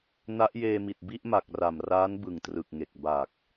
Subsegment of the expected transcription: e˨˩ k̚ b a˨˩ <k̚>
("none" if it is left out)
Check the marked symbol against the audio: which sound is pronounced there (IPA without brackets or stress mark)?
k̚